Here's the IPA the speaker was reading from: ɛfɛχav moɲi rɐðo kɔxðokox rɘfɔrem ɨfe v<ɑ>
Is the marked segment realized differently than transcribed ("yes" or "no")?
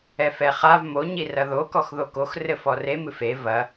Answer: yes